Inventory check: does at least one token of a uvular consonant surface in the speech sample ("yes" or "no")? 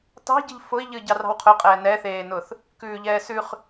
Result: yes